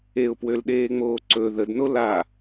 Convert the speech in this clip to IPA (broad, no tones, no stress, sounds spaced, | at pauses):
e ʊ̯ p w ø l ɗ eː ŋ͡m oː ǀ ɵ ð ə d n o l a